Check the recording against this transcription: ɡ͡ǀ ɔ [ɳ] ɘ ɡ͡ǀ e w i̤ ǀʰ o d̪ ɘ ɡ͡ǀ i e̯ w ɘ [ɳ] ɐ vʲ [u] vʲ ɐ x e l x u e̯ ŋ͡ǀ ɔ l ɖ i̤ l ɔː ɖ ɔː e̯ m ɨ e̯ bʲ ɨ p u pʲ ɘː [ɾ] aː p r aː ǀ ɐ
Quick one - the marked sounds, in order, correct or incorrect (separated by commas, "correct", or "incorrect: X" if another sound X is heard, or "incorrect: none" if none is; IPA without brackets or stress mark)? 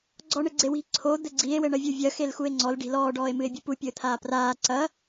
correct, correct, correct, incorrect: t̪ʰ